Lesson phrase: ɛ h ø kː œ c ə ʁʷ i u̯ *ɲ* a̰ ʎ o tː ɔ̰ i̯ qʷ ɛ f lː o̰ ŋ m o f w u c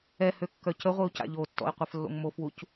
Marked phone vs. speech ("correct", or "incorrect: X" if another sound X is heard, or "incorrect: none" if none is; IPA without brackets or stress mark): incorrect: c